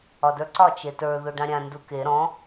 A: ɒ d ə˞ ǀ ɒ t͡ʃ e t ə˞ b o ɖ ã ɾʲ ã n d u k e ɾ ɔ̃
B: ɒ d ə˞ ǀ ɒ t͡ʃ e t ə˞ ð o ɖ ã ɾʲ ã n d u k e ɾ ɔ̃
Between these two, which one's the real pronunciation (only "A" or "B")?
B